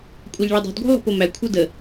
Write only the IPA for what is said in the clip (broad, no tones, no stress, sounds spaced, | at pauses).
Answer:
kʷʼ æ ʎ ɭ ɤ dˤ o̤ d ɡʷ ɛ̤ lˠ o̤ p o m æ kʷʰ ɤ d ə